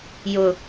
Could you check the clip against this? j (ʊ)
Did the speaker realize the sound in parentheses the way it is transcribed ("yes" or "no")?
yes